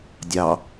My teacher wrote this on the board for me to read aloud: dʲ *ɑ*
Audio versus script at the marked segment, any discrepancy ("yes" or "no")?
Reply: no